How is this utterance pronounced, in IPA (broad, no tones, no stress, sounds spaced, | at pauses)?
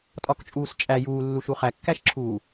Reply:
tʼ ɒ k t͡ʃʼ uː s t͡ʃʼ æ j uː lː u ʃ u χ æ kː æ ʃ ǁʰ uː